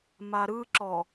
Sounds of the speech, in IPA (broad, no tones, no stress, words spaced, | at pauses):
maɾɯǁɔ